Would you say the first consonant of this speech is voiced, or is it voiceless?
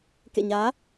voiceless